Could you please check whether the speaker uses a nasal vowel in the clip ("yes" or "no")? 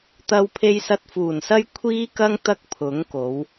no